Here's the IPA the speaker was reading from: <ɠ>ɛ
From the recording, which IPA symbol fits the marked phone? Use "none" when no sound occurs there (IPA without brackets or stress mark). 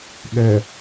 ɠ